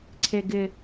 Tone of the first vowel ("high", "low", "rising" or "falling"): low